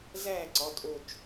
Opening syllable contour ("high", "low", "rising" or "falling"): falling